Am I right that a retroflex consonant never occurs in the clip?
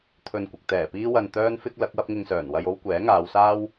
yes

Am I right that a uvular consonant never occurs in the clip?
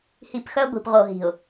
no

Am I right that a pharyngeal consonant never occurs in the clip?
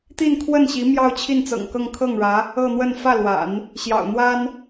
yes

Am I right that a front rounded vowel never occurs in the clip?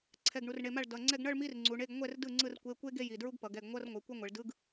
yes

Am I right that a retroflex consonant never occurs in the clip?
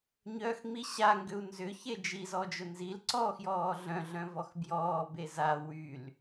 yes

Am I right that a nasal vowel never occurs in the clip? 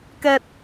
yes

